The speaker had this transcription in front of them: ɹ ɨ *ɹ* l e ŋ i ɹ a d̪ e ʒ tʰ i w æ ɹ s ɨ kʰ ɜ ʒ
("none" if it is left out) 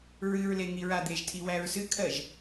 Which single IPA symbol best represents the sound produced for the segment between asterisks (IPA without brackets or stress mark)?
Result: ɹ